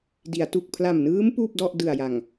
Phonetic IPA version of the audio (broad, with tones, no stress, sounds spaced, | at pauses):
d i˩˦ a̯ t u˨˩ k̚ pʰ l a˨˩ m n ɯː˦˥ m p uː˥˩ p̚ d ɔ˥˩ ʔ d ɯ˨˩ a̯ j a˨˩ ŋ